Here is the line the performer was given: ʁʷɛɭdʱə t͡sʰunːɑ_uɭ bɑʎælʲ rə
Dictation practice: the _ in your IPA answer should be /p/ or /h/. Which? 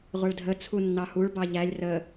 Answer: h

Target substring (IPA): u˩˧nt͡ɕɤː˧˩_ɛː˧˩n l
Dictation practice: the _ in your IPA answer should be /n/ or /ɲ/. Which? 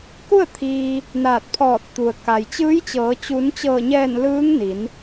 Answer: ɲ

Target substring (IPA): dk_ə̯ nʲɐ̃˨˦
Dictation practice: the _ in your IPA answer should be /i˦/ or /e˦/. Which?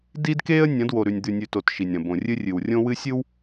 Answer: e˦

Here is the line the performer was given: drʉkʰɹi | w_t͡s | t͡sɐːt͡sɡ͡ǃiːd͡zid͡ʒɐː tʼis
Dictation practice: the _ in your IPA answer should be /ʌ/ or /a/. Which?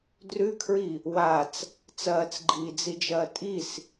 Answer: a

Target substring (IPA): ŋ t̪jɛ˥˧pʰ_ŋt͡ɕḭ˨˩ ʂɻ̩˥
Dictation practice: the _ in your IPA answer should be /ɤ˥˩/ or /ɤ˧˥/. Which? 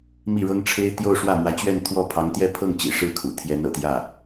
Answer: ɤ˥˩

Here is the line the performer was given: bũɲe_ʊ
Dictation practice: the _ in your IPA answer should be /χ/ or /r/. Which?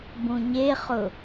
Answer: χ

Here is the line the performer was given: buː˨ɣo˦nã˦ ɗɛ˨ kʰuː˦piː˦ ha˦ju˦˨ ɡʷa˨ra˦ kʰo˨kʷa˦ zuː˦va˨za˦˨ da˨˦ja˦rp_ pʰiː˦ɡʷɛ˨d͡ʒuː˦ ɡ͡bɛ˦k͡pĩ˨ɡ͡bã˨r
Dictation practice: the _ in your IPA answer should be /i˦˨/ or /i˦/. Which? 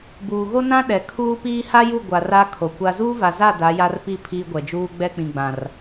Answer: i˦˨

